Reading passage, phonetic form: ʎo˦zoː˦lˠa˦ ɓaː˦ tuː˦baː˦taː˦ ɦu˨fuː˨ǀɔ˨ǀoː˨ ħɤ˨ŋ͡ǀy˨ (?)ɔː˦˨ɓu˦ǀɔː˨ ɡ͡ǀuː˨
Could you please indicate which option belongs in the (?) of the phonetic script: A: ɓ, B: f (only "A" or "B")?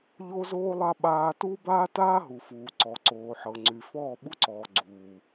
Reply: B